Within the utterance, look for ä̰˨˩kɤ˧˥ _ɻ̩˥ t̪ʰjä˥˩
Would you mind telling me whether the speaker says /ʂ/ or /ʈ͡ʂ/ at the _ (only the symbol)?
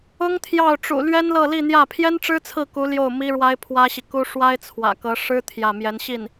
ʂ